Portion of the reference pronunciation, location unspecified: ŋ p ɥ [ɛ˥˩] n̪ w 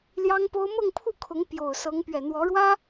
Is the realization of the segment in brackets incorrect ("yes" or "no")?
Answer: yes